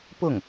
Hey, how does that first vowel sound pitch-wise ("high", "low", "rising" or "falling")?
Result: falling